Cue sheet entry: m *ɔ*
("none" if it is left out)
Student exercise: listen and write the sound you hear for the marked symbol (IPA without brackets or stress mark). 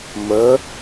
ə